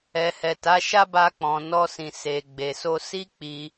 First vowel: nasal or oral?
oral